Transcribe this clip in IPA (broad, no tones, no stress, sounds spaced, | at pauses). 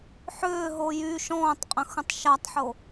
ħ ʏː ɦ o j y ʃ ɔ̃ː tˤ qʼ ə̃ x ə̃ tˤ ʃ a tˤ ħ o